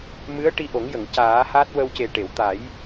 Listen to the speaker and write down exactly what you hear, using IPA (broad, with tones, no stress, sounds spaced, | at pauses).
m ɨ˧˥ ə̯ ʈ i˧ ʔ o˨˩˦ ŋ j ə˨˩˨ ŋ c aː˨˩˦ h a˦˥ t̚ w ə˧ w c e˨˩ ʈ e˨˩˨ w t̪ a˨˩˦ j